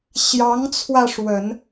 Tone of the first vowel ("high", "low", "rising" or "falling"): rising